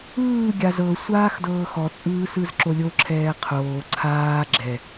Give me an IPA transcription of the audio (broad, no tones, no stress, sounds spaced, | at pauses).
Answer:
ɯː ɡʲ a z ɤ sʷ aː x d ɤː x ɔ t͡sʼ ɯː s ɯ z ǁ o lʲ o ǁʰ ɛː qʰ oː ǀʰ aː ɡ͡ǁ ɛ